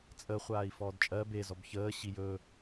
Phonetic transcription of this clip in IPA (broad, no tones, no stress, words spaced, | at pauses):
t͡sʼə χʷaːi̯fɔːdt͡ʃʼɜ be zɔbçəː ɕijɵ